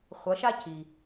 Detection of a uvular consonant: present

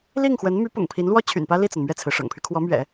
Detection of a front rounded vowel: present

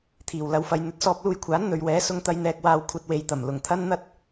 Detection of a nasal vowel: absent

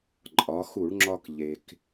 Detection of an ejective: present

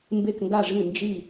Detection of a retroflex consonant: present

